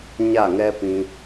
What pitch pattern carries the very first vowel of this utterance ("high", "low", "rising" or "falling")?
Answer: falling